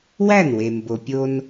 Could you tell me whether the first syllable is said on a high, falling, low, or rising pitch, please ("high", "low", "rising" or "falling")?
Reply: falling